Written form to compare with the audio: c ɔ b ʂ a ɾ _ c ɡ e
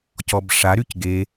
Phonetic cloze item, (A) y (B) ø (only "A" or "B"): A